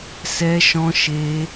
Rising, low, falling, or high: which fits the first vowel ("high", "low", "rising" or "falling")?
high